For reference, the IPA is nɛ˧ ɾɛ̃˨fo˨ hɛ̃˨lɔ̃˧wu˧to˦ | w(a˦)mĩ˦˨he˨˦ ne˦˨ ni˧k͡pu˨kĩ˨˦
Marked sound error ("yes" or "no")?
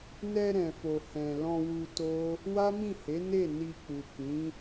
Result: no